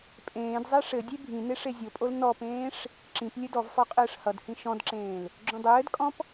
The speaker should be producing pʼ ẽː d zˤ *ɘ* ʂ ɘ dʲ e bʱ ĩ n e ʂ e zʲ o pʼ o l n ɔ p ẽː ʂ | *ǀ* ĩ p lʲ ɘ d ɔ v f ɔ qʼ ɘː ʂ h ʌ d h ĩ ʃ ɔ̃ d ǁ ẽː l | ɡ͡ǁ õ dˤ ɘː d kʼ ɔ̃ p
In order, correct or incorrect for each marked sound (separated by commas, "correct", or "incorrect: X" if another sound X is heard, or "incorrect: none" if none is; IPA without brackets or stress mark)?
incorrect: e, incorrect: ǁ